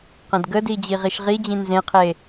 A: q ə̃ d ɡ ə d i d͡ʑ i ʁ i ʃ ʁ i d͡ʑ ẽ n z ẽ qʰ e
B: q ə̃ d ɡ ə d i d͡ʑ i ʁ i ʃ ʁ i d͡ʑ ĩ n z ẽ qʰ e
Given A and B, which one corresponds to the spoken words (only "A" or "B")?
B